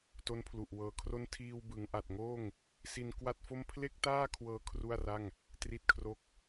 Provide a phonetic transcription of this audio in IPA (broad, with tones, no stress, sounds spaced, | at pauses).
t o˦˥ n pʰ l u˨˩ ʔ w ɤː˧ kʰ r o˥˩ n tʰ iː˧ w b ɯ˩˦ ŋ ʔ a˨˩ t̚ ŋ oː˥˩ ŋ | s i˧ n k w a˥˩ t̚ f o˥˩ m pʰ l e˥˩ k̚ t aː˥˩ kʰ w ɤː˧ kʰ r u˥˩ a̯ r a˥˩ ŋ | t r i˥˩ t̚ kʰ r o˥˩ k̚